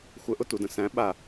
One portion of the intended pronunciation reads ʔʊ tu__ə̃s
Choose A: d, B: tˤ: A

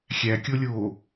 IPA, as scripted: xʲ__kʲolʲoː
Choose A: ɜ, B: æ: B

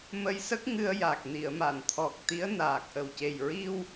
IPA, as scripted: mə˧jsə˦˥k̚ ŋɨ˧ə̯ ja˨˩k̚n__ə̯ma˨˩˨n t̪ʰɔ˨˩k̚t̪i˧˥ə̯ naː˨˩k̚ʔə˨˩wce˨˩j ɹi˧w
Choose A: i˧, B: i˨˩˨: B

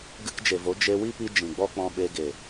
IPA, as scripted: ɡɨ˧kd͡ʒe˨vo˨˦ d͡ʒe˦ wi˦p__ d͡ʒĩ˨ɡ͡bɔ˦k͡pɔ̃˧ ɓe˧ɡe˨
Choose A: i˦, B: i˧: B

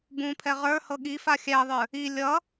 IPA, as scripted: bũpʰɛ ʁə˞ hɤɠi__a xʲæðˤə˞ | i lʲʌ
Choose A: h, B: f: B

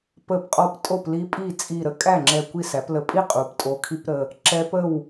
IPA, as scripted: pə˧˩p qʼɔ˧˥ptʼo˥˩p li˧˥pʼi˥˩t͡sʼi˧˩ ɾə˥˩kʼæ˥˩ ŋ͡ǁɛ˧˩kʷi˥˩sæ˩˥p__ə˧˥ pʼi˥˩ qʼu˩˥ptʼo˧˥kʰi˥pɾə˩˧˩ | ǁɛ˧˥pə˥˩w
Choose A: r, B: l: B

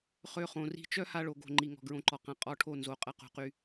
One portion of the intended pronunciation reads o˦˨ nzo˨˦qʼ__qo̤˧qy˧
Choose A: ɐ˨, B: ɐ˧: B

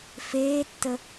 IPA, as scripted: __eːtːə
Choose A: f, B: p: A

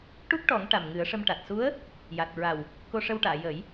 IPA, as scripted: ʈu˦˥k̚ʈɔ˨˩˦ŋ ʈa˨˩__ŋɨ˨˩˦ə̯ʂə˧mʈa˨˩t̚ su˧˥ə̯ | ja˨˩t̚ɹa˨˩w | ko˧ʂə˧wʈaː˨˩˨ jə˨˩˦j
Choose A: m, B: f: A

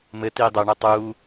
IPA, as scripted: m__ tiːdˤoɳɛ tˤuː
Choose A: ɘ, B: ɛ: A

